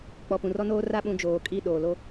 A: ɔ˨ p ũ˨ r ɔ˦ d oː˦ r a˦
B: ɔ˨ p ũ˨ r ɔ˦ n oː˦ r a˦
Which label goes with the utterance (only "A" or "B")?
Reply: B